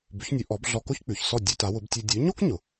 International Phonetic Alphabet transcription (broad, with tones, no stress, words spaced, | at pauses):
bʉ˩˥çnʲʉ˩˥ʔɔ˩˥b ɮɔ˧ko˥çk͡pʉ˩çsɔ˥˩ dʲʉ˧ta˩˥wʊ˩˥btʲʉ˧ dʲʉ˩˥ɲo˥k ɲʊ˩